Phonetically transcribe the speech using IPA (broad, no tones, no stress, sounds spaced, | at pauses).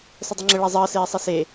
s ə dˤ ɘ ŋ͡ǁ ə ɭ e zˤ əː s eː sˤ e s e